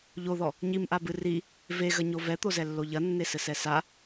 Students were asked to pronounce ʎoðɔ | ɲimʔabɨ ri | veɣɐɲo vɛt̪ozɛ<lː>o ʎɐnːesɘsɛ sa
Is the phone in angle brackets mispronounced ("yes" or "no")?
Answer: no